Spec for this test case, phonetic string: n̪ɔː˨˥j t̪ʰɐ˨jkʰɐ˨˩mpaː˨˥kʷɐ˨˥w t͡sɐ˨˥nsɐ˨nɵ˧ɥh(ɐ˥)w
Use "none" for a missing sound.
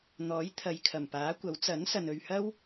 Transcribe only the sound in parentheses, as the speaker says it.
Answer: ɐ˥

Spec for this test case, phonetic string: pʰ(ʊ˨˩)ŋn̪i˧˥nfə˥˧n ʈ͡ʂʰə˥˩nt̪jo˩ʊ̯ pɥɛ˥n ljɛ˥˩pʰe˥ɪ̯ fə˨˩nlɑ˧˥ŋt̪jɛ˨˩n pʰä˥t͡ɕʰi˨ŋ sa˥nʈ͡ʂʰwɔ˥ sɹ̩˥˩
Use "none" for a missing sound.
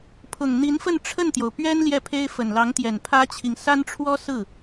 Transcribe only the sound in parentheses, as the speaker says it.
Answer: ʊ˨˩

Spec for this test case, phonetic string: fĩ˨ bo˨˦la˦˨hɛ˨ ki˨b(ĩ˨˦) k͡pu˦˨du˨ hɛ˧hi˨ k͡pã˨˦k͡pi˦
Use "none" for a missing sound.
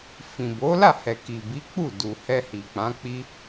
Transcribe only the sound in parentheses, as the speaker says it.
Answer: i˨˦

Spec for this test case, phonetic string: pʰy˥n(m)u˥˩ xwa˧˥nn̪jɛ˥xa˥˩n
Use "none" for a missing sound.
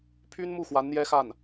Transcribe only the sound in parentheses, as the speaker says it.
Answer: m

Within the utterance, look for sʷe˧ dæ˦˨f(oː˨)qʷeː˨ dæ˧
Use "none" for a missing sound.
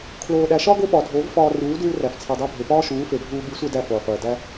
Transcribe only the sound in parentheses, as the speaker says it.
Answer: oː˨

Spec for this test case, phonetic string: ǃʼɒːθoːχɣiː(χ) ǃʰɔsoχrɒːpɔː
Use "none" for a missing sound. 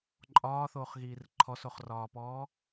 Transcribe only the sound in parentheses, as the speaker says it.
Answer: r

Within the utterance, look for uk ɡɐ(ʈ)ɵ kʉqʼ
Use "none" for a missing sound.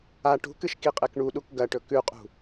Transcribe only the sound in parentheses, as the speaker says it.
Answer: ʈ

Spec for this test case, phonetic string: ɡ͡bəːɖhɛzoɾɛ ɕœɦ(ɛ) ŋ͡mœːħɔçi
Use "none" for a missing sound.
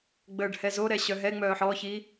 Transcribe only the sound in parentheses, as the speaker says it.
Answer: ɛ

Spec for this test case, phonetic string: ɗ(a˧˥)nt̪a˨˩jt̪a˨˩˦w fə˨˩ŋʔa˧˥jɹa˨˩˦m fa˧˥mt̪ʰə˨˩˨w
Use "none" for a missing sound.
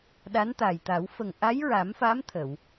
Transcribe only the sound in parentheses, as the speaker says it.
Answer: a˧˥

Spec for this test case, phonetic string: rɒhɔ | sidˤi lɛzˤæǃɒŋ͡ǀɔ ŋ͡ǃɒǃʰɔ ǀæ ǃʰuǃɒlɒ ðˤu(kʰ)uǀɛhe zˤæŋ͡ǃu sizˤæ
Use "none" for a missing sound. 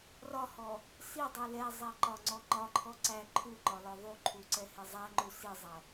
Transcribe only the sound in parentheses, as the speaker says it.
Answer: ǃʰ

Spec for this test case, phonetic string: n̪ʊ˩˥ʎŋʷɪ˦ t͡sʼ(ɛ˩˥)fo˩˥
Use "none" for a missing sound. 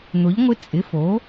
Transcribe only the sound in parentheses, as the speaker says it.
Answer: ɪ˩˥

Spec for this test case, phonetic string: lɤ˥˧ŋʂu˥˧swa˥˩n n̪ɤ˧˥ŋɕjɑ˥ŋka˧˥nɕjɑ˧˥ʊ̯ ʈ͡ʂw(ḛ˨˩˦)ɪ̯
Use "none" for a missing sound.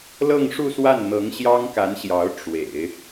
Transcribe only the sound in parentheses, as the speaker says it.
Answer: ḛ˨˩˦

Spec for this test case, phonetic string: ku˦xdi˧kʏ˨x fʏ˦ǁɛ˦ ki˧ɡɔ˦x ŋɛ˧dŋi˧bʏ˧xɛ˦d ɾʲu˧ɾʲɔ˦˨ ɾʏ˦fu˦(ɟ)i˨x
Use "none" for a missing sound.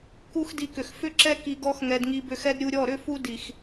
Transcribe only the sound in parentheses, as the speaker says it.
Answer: d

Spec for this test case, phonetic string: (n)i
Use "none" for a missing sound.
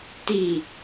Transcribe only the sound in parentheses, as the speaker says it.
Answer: t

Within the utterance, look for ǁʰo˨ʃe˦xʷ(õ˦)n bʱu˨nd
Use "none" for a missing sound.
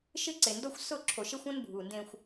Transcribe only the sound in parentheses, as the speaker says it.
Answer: õ˦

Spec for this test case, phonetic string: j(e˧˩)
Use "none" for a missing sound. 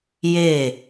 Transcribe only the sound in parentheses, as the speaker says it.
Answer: e˧˩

